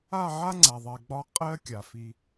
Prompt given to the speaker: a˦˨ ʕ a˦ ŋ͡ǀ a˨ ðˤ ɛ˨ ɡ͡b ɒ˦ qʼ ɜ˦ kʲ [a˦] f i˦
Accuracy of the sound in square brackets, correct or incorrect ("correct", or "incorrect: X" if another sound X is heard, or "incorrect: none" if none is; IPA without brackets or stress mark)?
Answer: incorrect: a˨